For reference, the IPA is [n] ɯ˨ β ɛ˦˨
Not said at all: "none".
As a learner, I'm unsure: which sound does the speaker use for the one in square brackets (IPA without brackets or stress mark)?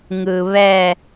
ŋ